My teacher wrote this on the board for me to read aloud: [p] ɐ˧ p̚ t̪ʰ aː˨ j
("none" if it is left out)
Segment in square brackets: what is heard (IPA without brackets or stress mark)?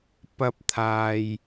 p